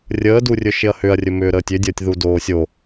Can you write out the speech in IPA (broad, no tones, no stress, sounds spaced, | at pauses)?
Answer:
rʲ əː d u rʲ ɵ ʃ ɪ ɐ̯ h ʏ ɐ̯ rʲ ɵ m ʏː ɾ əː tʲ ʏ dʲ əː tʲ ð u d oː sʲ o